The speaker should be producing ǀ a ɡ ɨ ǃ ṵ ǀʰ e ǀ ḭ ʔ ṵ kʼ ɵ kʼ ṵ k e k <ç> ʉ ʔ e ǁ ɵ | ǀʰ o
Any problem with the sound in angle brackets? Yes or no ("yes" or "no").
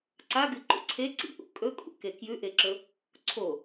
yes